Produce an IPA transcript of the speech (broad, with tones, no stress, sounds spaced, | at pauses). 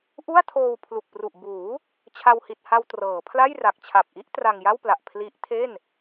ʔ u˥˩ a̯ tʰ oː˧ w pʰ l u˨˩ k̚ p r u˨˩ ʔ b uː˩˦ | t͡ɕʰ a˧ w h i˨˩ t̚ h a˧ w t r ɤː˩˦ pʰ l a˥˩ j r a˨˩ k̚ t͡ɕʰ a˨˩ p̚ ʔ i˦˥ ʔ t r a˧ ŋ j a˥˩ w p l a˨˩ ʔ pʰ l i˦˥ ʔ tʰ e˥˩ n